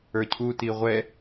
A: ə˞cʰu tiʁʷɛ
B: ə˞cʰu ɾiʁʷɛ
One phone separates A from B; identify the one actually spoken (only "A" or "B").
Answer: A